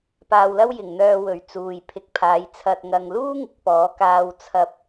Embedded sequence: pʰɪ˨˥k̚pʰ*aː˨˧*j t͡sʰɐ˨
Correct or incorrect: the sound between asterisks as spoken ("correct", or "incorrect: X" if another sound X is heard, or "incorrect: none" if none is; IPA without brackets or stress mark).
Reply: correct